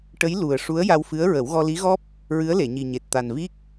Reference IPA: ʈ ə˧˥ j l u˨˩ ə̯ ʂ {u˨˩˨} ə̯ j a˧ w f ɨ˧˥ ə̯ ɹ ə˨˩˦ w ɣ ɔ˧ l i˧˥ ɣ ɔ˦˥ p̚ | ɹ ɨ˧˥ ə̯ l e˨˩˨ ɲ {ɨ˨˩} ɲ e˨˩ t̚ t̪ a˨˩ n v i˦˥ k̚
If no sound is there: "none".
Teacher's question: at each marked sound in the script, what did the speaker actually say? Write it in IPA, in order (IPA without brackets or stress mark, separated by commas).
u˧˥, i˨˩